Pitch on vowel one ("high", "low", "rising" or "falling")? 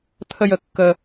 high